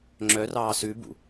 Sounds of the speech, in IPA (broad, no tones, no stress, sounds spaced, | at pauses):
ŋ͡ǁ œ r ɑː s ʉ b ṵ